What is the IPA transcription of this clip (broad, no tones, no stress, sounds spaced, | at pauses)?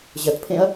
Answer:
ʑ ɐ t pʰ ẽ ɐ̯